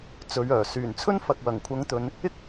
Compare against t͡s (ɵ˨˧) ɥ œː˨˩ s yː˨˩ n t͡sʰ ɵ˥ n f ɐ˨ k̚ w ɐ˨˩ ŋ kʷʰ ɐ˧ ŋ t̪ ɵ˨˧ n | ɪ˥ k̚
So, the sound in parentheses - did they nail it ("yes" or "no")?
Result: yes